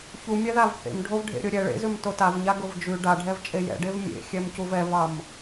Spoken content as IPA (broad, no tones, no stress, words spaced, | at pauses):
çumʲæðav θḛmɖʱov ɖʱḛɾʲʊɾʲɛ ɭḛzʉm totavɲa ɡʊvd͡ʒʉ ɖaɖʱɛv t͡ʃʼejɛ̰ɖev mʲḛxʲɛm cuvɛvɑm